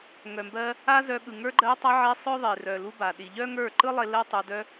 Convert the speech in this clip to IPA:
ŋœ˨mbɜ˧ | a˦zœ˧ɠɯ˨ ŋə˞˧ɡ͡ǃɜ˧tˤa˧ʕe˧ sˤœ˦ðˤe˨ rœ˨lu˧ ba˨ɗi˨ ʎœ˦ŋə˞˦˨ ǃɯ˦lˠe˧ lɜ˦ tˤə˞˧ dœ˧

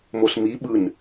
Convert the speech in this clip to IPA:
mosmi ɓɯn

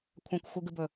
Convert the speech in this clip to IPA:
kʷʰãkʷxʷɨɡɨbɵ

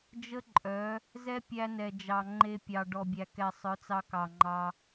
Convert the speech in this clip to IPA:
d͡ʒə˦ǃʼœ˨˦ | zɛ˦pʲæ˧nɛ˨d͡ʒɑ˨ ŋ͡ǃe˧pʲɑ˨ ɖɔ˨bʲæ˨kɛ˨sˤœ˨˦ t͡sɑ˧kɑ˨ŋ͡ǃɑ˧

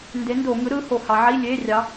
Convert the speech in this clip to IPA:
nde˨˥ndo˧˩˧ ŋɯ˨˥ɾɯ˨˥ ho˩˧ hɑ˩˧ʕi˧˥˧ lʲe˧˥˧rʲɑ˨˥

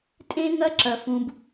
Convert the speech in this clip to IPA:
tʼẽ˥ŋɐ˥ ǁɐ˥fũ˥b

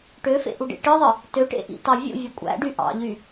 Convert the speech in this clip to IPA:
ʈøfḛʔuɖḛ ʈɯðˤɯ | tøʈḛʔḭtɑ vʲṵvʲu kʷʼæ̰ɖy ʔɑ̰ʎy

